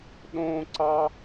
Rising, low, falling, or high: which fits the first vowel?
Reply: high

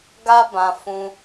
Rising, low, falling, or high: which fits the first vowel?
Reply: high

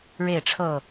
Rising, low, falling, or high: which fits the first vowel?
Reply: falling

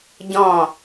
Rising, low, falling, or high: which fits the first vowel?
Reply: falling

